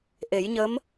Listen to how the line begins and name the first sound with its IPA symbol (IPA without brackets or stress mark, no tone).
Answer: ʔ